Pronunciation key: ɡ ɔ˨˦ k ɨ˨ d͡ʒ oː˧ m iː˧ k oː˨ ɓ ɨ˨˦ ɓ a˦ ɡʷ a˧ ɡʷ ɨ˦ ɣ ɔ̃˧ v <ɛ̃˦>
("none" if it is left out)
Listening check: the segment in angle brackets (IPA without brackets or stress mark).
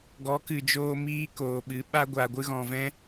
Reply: ɛ̃˦